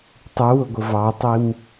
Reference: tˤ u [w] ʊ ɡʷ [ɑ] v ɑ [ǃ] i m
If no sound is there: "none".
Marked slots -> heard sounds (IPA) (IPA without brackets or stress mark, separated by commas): w, ə, tˤ